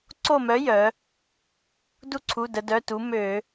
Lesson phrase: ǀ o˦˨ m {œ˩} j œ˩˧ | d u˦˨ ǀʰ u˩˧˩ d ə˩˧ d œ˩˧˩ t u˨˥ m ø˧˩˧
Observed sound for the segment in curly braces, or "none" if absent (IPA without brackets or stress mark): œ˨˥